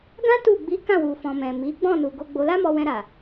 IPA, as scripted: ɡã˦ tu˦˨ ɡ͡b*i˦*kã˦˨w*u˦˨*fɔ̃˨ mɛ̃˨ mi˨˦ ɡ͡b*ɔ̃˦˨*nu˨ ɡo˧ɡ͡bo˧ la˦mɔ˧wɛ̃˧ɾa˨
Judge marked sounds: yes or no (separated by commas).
no, no, yes